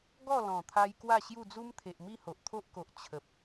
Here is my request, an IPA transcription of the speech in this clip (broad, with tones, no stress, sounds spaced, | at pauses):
ɡ ɔ˥˧ l ɔ̃˨˩ t̪ʰ a˧ j k w a˥˧ ɕ j u˥˧ d͡z u˦ m t̪ʰ e˨ ʔ m i˥˧ h o˨ ʔ t̪ʰ o˦ ʔ k o˨ ʔ t͡ɕʰ ə˨ p̚